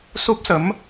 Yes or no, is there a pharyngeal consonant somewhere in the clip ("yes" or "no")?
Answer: no